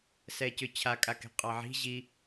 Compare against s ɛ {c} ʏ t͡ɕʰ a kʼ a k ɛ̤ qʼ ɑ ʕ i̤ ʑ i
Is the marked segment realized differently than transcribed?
no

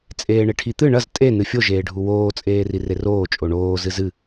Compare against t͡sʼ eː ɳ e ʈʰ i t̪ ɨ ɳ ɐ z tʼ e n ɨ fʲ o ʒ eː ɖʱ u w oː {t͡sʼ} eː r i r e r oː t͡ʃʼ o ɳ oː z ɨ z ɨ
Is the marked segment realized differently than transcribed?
no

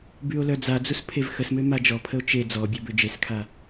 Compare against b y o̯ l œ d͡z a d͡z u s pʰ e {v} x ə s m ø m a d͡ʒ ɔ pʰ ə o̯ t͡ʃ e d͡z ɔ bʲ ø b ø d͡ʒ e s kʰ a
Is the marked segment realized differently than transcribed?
no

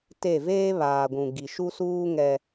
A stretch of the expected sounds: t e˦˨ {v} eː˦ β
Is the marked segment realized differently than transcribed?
no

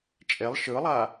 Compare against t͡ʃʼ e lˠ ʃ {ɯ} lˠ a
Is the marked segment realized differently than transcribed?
no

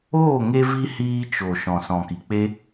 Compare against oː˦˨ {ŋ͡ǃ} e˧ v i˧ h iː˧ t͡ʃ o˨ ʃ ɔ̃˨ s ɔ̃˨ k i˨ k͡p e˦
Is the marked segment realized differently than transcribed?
yes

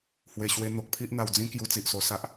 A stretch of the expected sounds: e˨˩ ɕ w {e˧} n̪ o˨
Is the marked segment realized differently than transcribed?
no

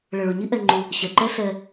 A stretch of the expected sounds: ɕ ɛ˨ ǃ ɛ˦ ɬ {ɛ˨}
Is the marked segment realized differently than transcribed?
yes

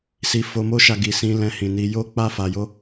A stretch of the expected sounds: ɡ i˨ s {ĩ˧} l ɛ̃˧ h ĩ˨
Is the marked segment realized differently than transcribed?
no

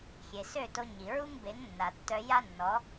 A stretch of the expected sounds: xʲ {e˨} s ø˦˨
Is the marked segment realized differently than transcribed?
no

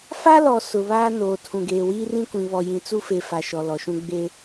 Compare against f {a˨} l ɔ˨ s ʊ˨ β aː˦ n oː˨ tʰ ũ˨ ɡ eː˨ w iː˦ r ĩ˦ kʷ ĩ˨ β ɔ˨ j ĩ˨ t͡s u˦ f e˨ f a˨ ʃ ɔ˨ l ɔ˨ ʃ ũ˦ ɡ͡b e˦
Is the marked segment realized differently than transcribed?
yes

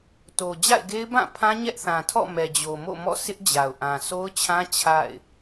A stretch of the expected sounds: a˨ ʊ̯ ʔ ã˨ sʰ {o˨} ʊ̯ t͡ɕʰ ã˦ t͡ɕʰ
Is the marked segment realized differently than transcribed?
yes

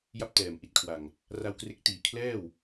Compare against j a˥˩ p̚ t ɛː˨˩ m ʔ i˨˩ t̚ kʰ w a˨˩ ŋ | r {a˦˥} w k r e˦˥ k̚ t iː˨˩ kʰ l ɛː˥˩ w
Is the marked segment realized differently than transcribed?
yes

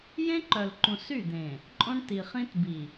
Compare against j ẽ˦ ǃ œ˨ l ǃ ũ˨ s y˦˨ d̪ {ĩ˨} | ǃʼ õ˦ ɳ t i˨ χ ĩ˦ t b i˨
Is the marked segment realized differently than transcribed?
yes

